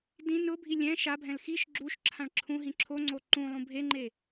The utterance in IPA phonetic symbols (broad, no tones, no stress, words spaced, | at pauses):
dĩ nʊbʱi lʲɛ̃ ʃabʱɛ̃l xiʃ ɡ͡ǁuʃǁʰãɭ ǁʰũɦĩ ǁʰoŋ͡ǀo ǃũlˠũ bʱeŋ͡ǃe